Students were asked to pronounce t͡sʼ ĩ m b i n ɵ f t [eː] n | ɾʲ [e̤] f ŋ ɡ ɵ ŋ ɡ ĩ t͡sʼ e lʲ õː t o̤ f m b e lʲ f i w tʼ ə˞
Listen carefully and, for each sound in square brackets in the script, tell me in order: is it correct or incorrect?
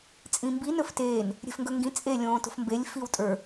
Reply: correct, correct

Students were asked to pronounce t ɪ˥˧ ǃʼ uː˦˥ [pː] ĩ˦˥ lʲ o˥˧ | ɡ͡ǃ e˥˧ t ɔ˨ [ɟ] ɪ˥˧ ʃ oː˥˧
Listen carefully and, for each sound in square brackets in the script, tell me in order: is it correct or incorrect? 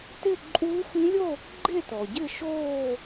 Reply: incorrect, correct

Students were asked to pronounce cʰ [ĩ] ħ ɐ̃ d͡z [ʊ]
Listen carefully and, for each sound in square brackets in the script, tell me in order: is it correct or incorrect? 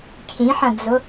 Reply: correct, correct

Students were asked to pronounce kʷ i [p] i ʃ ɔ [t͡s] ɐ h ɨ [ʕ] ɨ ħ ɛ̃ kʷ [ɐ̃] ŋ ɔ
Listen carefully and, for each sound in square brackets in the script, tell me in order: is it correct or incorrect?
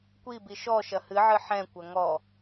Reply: incorrect, incorrect, correct, incorrect

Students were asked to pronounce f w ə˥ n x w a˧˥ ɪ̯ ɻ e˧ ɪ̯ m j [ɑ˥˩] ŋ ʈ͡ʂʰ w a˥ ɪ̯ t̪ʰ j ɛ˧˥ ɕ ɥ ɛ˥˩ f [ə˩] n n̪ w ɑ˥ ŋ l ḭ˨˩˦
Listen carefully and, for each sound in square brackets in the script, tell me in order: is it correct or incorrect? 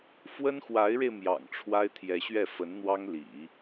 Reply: incorrect, incorrect

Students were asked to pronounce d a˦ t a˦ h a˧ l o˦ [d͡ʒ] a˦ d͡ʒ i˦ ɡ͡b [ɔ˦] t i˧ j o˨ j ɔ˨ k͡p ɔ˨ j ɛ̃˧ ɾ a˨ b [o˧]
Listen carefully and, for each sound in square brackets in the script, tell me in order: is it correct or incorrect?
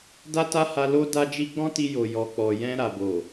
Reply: incorrect, incorrect, incorrect

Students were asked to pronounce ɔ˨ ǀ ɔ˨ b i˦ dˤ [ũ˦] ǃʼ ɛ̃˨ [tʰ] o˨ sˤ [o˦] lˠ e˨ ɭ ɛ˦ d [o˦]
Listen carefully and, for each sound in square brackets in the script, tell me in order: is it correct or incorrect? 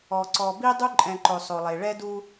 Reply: incorrect, incorrect, incorrect, incorrect

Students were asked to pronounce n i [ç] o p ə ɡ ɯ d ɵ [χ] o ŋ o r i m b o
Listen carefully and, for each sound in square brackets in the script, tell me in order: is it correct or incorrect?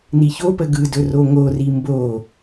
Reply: correct, incorrect

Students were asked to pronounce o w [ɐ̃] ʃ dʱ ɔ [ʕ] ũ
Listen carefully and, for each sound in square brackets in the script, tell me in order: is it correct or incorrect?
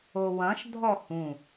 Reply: correct, incorrect

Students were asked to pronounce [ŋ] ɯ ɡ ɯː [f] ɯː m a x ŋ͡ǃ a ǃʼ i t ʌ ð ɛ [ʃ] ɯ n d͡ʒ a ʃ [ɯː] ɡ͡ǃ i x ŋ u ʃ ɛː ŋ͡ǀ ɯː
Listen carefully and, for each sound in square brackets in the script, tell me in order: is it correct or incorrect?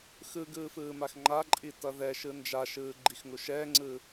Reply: incorrect, correct, correct, correct

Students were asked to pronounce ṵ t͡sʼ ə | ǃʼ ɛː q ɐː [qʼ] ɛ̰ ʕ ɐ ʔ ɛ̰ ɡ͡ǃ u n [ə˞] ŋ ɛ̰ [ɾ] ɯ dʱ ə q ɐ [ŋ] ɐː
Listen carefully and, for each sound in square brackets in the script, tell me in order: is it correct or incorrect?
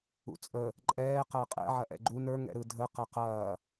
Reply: correct, correct, correct, incorrect

